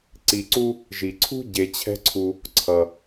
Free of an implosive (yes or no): yes